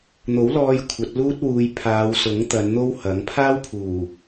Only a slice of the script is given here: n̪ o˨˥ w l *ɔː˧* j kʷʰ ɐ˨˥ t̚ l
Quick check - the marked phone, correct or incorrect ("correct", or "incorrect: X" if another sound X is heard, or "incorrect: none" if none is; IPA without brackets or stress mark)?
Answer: correct